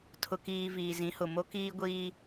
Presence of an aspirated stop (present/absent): present